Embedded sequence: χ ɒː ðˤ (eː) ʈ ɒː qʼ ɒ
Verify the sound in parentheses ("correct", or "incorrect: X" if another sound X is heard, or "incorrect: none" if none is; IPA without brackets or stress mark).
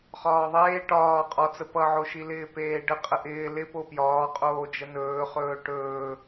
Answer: correct